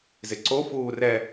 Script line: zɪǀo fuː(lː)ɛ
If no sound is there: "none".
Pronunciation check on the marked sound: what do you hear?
r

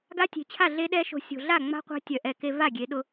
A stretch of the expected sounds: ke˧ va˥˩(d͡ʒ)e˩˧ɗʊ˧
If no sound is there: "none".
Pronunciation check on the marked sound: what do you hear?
ɡʲ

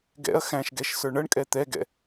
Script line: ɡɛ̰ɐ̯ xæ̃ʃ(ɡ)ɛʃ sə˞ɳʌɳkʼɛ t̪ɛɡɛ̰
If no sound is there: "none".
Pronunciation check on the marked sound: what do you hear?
ɡ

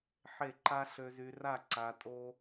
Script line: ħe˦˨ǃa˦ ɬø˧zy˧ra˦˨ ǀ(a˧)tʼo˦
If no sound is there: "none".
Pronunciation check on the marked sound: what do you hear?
a˧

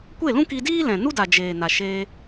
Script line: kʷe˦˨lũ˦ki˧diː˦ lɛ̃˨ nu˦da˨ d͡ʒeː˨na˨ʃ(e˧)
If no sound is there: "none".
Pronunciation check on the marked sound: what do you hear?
eː˧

